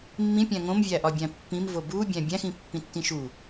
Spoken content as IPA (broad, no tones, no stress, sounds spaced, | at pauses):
mː ĩ pʲ æ̃ ŋ õ m vʲ æ ʔ ɒ bʲ æ̃ pː ĩ m v o b u bʲ æ̃ bʲ æ̃ x ĩ pː ĩ tː ĩ ʃ u